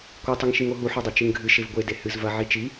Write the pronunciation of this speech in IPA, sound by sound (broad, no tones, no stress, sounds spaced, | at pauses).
kʷ ɨ tˤ ɨ ŋ ʃ i ŋ o ɦ u ħ o dˤ o t͡ʃ ɨ ŋ ɡʱ ɨ ʃ e v ɡʷ e d e h ɨ z v ɐ ʕ i t͡ʃ i